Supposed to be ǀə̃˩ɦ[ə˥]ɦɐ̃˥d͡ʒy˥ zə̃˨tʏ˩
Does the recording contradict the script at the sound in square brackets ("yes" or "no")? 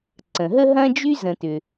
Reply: no